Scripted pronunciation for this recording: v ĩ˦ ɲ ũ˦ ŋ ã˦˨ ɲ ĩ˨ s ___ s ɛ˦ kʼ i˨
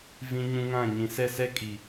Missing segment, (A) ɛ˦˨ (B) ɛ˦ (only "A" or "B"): A